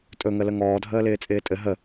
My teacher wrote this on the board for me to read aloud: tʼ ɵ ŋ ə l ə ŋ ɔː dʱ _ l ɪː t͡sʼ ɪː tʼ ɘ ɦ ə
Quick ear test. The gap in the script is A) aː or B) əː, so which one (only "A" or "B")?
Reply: B